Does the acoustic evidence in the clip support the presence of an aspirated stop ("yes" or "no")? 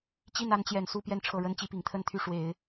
yes